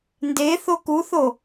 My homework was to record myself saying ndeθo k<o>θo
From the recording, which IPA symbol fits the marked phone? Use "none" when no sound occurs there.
u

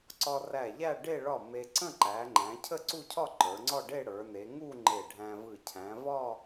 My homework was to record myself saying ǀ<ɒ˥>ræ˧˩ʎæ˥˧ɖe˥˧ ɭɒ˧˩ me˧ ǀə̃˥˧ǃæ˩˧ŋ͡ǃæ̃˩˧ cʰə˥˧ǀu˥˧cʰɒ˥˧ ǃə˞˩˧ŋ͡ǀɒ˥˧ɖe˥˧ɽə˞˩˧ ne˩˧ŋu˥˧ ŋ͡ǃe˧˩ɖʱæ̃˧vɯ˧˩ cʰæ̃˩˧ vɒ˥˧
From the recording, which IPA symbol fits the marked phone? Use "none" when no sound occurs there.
ɒ˧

